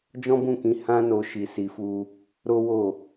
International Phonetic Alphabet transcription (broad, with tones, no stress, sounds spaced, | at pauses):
d͡ʒ ɔ̃˦ b ũ˦˨ k ĩ˨˦ h ã˦ n o˧ ʃ i˧ s i˧ f u˦ | ɾ o˦ w o˦˨